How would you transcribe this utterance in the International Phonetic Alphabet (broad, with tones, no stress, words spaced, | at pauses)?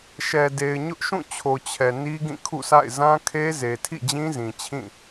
ʃɛ˨ de˨ɪ̯ɲʊ˦ʔʃũ˦˨t͡ɕʰo˨ t͡ɕʰɛ˨ ni˦ɡĩ˦˨kʰṵ˦˨sʰa̰˦˨ɪ̯ zã˦kʰe˦ ze˨tʰḭ˦˨d͡ʑĩ˦zĩ˨ t͡ɕʰĩ˦˨